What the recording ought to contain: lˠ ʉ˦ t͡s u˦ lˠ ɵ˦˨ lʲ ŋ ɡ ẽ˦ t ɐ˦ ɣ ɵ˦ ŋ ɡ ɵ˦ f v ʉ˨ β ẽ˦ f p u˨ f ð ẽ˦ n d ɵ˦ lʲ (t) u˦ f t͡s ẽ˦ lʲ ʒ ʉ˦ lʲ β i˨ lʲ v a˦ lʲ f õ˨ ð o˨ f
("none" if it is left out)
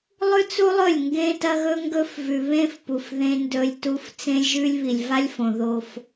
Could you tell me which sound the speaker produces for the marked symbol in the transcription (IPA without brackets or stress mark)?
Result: t